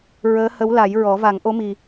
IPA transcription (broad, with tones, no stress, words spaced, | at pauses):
ɹəː˧˥hə˧˥wla˨˩˦jɹɔ˨˩˦ va˨˩˦ŋʔo˧˥mi˨˩